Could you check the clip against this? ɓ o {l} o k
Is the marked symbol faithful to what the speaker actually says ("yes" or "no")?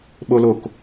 yes